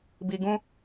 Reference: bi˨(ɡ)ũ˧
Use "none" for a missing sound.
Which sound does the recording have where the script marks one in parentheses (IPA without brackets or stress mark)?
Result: ɡ